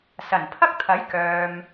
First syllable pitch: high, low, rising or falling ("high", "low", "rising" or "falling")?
low